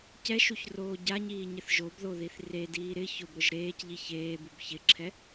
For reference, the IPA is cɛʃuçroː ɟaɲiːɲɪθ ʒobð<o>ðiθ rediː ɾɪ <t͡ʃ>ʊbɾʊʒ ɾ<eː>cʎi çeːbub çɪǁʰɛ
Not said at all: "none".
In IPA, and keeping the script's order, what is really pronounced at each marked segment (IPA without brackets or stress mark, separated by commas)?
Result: o, ç, eː